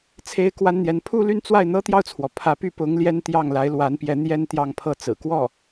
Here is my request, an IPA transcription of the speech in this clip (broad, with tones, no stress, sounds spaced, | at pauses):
t͡sʰ e˥ ɪ̯ k w a˥ n n̪ j ɛ˧˥ n pʰ u˥˧ l y˥˧ n t͡s w a˥˩ ɪ̯ n̪ ɤ˥ t̪ j ɑ˥˩ ʊ̯ t͡sʰ w ɔ˩ pʰ ä˧˥ p y˥˩ p ʊ˧˥ ŋ l j ɛ˥ n t̪ j ɑ˥˩ ŋ l a˧˥ ɪ̯ l w a˧˥ n p j ɛ˧˥ n̪ j ɛ˥ n t̪ j ɑ˥˧ ŋ pʰ ɤ˥˩ t͡s ɹ̩˨˩ k w ɔ˥˩